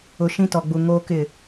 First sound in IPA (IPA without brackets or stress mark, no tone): ʊ